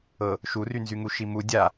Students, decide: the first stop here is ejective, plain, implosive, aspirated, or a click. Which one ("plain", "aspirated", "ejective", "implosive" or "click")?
plain